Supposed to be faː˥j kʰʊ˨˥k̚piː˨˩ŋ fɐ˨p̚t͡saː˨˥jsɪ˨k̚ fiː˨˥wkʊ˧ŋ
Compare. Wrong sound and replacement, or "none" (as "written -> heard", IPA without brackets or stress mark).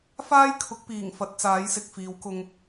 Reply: p̚ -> t̚